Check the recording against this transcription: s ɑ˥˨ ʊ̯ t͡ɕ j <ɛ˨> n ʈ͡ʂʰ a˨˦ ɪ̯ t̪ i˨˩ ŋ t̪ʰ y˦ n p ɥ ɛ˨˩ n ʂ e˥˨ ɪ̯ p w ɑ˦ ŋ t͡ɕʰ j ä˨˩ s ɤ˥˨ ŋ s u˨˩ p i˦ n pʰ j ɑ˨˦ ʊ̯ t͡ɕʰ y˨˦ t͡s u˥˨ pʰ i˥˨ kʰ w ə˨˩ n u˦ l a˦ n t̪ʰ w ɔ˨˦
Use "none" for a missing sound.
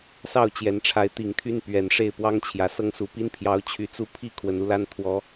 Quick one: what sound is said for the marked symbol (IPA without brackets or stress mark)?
ɛ˨˦